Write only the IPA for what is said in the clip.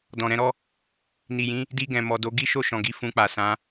dɔ̃˨ɾɛ̃˧ɾɔ˦ | ni˨jĩ˨˦ | di˧ɡɛ̃˨ mɔ˨do˨˦ ɡi˦ʃo˦˨ʃɔ̃˨ɡi˨˦ fũ˧k͡pa˨ sã˨˦

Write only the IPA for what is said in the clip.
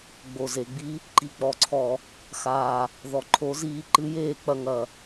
ɡ͡bo˨˩ze˧˩˧ɡ͡bi˧˥ | ǃi˨˩k͡pɔ˨˩ǀʰɔ˧˩˧ | xaː˨˩ | ðɔ˨˩ǃʰo˧˥ziː˧˥ ǃɨ˧˥jeː˥˨k͡pɐ˥˨ŋɐ˧˩˧

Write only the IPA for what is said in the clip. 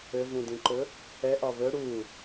ɘvũdĩǃɵ | ɛʔɒ βɵ ɽu

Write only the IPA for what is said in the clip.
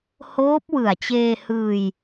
hoː˦˥p̚wɯ˨˩a̯t͡ɕeː˧hɯː˧j

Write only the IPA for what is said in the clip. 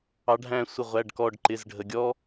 ɑ˩˧ɖʱæ̃˧˩ sʷɪ˧˩ʁʷæ˩˧˩ɖkɔ˧˩ɖǃɪ˩˧˩z ɖʱə˩ɡʲɔ˦

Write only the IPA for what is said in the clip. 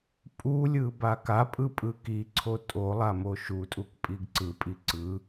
pʼulʲɯ bakapʼɯ pʼɯkiǀʰo tʼo lˠamoʃutʼuk pʼiɡǀɯpʼi ǀɯ

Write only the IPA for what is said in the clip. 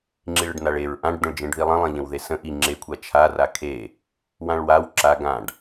ŋ͡ǁiɭəɖnaɭeɹ ʔãɖd̪ə̃ɭ d͡ʒẽɖðilˠə̃ lˠẽʎə̃wðesə̃ ʔi ŋ͡ǁekʷʰa t͡ʃʰara kʰe | wãɭwaw ǁa ɡãɖ

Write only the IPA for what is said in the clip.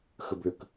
xəbɭək

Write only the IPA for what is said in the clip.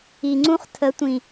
i˨ŋ͡ǀũ˦χ tʰə˨˦tʷĩ˨

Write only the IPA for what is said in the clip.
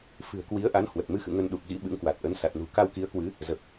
fɨ̤˨˩ə̯kwi˨˦ə̯ʔa˨˦n hwə˨˩t̚mɨ˧xɨ̰˧˨ ŋə˧nɗu˨˩k̚ɣḭ˧˥ ɓɨ̰˧˥ŋkwa˨˩t̚ʔə˨˦n sa˨˩t̚nṳ˨˩ ka˧wki˨˦ə̯kwɨ˨˦ | zə˨˩p̚

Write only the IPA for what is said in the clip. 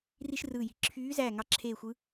ri˥ʃrɯː˦˨ji̤˧˥ ǁʰyː˧˥zæː˦˨ ŋɑ˦˨ǁʰeː˦˨ xʷɯ˧˥

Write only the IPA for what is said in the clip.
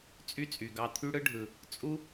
t͡sʼy˦t͡sʼy˨ɡɑ˧ t̪ʰy˦ɽɯ˦ɖʱɯ˨ | t͡sʼu˦

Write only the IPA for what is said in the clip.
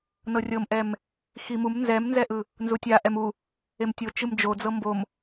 nɤrʲɤmʔɛm | ximum nzɛmnzɛʔɯ | nzutʲa ʔɛmu | emtʲo t͡ʃɯmd͡ʒod͡zɤ mbom

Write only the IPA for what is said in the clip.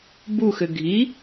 buxɘ ɡʱi

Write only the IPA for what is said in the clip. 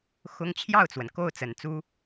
xʊ˥ŋ t͡ɕʰjɑ˥˩ʊ̯t͡swə˩n ko˥˩ʊ̯t͡sə˨˩nt͡su˥

